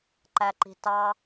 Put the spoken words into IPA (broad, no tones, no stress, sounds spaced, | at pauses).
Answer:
ǃ æ ǃ i̤ t ɑ